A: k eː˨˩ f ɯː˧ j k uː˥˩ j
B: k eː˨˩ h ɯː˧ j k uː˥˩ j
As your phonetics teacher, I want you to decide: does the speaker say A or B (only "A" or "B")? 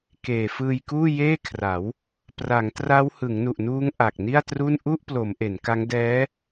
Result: A